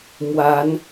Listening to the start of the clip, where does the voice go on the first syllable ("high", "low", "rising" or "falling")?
rising